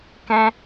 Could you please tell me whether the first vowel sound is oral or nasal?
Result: nasal